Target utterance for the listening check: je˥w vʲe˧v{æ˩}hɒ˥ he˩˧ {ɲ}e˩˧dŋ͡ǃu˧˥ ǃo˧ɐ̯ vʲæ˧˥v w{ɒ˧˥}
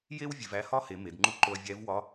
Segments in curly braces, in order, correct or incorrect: incorrect: æ˧˥, incorrect: m, correct

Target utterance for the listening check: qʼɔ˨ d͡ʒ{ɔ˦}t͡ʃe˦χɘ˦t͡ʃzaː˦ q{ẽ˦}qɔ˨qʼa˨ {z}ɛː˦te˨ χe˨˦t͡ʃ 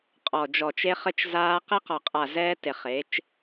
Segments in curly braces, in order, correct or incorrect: incorrect: ɔ˨, incorrect: e˦, correct

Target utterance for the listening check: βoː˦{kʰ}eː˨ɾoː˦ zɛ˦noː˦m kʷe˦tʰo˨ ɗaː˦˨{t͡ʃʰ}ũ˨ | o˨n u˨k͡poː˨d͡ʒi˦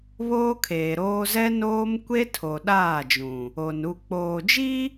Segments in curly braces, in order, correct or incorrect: correct, incorrect: d͡ʒ

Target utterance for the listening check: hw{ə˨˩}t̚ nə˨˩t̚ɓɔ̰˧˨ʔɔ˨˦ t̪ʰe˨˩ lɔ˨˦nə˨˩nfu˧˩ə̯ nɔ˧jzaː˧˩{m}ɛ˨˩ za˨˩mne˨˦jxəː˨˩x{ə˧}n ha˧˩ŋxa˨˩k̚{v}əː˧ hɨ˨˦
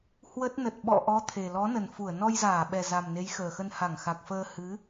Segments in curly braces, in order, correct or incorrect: incorrect: ə˦˥, incorrect: ɓ, correct, incorrect: f

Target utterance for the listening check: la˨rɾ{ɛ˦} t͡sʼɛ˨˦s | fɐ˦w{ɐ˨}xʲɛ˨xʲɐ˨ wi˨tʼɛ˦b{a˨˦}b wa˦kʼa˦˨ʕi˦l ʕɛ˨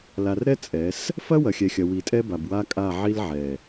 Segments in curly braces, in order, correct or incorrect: correct, correct, incorrect: a˨

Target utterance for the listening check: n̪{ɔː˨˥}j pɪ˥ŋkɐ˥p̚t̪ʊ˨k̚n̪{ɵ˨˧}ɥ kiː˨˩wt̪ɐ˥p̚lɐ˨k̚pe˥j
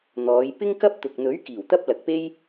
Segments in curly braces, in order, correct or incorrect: incorrect: ɔː˨˧, incorrect: ɵ˨˥

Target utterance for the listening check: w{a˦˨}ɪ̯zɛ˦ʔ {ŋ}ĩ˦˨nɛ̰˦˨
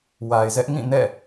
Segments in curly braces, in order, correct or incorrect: incorrect: a˨, correct

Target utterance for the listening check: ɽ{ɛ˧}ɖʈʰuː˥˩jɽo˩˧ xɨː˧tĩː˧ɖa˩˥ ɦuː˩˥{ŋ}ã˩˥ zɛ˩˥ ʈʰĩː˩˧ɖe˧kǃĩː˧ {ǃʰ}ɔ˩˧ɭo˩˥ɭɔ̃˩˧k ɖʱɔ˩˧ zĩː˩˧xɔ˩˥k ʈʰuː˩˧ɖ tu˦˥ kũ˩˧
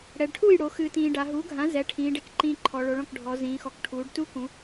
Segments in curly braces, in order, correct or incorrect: incorrect: ɛ˩˧, incorrect: ɡʱ, correct

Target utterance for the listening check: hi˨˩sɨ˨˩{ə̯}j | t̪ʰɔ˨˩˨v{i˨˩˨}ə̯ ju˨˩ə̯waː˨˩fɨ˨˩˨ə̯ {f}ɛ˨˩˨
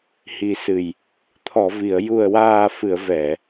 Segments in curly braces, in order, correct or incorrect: incorrect: none, correct, incorrect: v

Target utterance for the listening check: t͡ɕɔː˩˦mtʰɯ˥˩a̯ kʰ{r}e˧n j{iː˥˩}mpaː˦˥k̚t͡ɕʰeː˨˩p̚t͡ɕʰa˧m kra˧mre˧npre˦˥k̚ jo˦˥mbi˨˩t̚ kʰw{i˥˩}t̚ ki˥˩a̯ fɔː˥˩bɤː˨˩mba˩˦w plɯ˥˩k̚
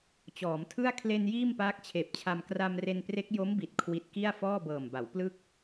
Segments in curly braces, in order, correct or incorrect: incorrect: l, correct, incorrect: i˦˥

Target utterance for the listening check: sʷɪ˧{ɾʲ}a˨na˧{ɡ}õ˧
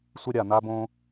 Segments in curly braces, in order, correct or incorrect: correct, incorrect: b

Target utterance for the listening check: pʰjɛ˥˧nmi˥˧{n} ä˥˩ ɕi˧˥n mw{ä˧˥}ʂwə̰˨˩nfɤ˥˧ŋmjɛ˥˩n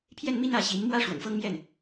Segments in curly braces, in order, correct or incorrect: correct, incorrect: ä˥

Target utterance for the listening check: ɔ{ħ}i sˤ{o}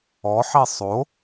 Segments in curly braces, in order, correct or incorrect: correct, correct

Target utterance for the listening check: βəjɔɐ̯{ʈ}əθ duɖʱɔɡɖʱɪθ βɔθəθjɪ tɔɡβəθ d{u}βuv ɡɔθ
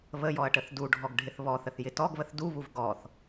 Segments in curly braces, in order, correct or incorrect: correct, correct

